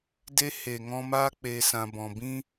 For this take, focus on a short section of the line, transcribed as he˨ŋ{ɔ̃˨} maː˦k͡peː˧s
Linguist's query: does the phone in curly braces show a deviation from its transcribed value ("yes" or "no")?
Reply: yes